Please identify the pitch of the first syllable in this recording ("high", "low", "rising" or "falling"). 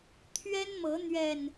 high